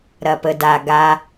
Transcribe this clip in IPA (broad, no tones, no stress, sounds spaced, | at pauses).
ɾ ɐ p ə d a ɡ a